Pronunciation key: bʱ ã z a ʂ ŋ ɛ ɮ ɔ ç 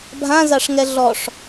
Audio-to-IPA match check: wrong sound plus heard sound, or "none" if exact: ç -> ʂ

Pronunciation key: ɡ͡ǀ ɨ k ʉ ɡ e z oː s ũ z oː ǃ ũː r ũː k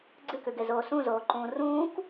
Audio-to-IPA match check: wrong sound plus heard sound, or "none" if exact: none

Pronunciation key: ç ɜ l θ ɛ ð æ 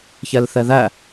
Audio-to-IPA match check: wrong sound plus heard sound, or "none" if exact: ɜ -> ɛ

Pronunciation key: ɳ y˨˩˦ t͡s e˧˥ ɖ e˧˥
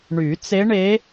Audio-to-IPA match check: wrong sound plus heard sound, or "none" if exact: ɖ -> ɳ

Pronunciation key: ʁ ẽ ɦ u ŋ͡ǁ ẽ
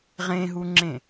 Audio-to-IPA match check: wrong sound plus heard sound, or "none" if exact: none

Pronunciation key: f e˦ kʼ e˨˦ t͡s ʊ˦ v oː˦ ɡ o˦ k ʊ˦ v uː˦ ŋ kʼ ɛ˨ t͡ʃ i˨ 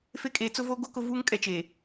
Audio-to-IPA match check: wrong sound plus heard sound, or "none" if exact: i˨ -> e˨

